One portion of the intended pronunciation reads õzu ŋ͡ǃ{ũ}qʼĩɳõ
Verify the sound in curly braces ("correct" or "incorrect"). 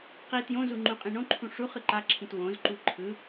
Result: correct